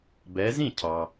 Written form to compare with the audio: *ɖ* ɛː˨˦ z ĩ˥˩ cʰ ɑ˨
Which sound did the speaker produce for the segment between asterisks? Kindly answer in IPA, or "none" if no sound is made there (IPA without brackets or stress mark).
b